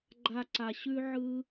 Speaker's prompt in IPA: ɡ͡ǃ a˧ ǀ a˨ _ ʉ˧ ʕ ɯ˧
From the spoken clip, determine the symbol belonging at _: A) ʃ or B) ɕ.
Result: B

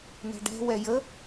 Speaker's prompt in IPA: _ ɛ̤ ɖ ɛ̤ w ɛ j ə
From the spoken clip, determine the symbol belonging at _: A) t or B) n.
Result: B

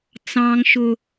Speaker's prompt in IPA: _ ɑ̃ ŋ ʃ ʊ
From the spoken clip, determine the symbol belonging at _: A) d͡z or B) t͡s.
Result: B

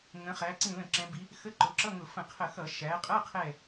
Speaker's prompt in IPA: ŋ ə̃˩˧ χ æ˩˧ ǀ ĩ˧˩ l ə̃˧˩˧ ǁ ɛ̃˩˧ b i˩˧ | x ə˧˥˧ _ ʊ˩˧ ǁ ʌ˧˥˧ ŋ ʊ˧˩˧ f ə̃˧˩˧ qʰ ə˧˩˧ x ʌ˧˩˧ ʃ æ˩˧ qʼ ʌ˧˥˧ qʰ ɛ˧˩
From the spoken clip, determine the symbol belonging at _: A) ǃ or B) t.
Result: A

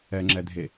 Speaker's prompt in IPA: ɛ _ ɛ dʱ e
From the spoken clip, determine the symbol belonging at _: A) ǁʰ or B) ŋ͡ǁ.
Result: B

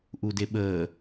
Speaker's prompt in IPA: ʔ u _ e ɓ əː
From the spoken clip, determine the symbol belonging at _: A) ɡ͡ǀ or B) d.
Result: B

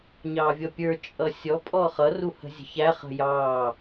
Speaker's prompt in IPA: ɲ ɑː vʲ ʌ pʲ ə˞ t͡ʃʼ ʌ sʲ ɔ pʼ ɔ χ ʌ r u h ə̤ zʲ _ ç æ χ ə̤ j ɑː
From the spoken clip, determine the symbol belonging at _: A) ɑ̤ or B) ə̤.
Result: B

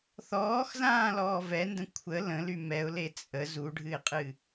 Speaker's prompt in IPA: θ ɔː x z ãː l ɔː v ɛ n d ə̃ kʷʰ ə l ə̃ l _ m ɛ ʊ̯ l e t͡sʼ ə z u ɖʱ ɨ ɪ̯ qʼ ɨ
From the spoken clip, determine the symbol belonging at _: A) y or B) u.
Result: A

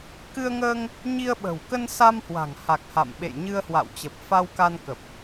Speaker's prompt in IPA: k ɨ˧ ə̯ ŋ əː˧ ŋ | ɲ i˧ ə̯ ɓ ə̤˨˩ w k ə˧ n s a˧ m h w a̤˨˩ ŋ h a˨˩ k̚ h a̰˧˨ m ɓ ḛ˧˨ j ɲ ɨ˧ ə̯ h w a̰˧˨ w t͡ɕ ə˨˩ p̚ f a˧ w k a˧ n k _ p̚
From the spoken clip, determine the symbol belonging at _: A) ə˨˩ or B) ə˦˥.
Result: A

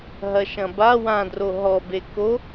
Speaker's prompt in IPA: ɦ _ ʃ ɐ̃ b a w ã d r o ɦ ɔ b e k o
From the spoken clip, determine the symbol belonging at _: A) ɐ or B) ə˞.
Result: A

